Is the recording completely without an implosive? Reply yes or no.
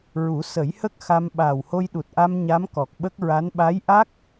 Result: no